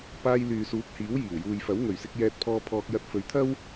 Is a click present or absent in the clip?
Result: absent